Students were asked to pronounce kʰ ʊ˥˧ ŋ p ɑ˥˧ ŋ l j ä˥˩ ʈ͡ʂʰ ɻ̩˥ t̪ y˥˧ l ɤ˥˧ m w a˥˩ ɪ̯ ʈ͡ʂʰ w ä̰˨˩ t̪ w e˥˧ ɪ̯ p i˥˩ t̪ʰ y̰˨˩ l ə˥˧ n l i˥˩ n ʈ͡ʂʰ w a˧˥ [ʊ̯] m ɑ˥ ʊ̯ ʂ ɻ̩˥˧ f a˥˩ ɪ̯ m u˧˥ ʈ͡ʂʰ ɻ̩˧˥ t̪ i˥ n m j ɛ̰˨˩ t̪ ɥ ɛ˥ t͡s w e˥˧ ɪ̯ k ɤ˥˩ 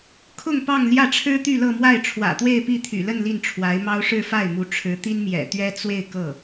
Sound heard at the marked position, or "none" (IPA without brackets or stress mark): ɪ̯